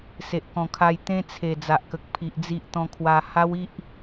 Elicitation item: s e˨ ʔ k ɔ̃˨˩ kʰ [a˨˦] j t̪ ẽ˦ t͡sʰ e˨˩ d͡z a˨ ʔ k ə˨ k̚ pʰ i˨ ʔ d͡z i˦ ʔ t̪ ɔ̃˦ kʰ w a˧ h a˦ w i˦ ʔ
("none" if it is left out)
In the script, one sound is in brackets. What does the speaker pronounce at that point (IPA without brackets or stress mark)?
a˧